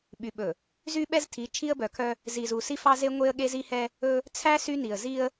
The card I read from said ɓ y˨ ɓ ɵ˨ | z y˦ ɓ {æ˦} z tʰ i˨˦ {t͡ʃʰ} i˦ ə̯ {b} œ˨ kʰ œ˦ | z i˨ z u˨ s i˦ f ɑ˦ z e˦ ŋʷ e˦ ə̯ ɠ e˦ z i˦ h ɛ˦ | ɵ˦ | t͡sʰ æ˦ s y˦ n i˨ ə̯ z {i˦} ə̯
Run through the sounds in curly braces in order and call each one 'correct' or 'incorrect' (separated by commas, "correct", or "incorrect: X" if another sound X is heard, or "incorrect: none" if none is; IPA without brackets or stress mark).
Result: incorrect: ɛ˦, correct, correct, correct